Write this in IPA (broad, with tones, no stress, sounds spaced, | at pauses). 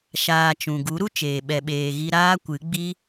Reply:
ʃ aː˧ t͡ʃ ũ˨ ɡ u˨˦ ɾ u˦ t͡ʃ eː˨ ɓ ɛ˧ ɓ eː˧ ɣ i˦ ɾ aː˦ kʷ ɨ˨˦ ɡ͡b i˦